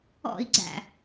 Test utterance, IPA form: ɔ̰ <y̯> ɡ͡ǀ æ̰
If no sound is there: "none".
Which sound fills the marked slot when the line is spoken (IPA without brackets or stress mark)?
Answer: i̯